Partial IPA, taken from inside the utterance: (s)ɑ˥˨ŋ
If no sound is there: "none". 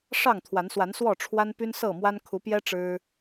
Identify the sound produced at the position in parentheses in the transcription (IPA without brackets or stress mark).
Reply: ʂ